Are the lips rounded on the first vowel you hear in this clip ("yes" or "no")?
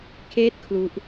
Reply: no